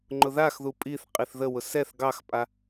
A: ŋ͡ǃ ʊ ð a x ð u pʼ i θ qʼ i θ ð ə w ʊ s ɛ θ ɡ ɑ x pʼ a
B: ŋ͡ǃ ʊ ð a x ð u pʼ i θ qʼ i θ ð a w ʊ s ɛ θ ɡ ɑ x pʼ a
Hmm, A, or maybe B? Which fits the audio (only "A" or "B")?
A